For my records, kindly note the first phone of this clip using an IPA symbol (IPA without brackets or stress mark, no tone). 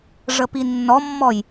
ʐ